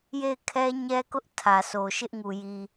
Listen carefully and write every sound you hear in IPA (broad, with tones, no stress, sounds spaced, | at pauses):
j e˦˨ ɪ̯ kʰ ɛ˦ ɲ ɛ˦ k ʊ˦ ʔ tʰ ä˨ s o˨ ʃ ɪ˦ ʔ ŋ u˨ j i˨